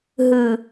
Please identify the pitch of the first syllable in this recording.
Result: low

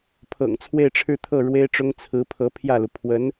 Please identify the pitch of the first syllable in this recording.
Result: low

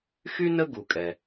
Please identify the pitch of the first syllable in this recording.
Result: high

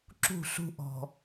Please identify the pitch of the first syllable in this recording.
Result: falling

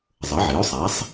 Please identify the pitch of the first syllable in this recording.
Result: rising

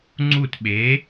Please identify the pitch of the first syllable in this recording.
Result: falling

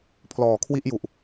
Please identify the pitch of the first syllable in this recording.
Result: low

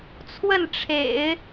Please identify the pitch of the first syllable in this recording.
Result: falling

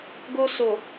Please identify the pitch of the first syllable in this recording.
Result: high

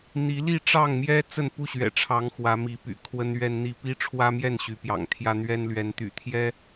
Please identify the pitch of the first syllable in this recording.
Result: rising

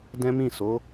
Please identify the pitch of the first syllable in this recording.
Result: high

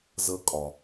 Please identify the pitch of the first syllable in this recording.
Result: rising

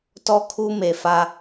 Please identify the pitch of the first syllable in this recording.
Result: high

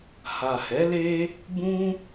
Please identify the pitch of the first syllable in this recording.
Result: low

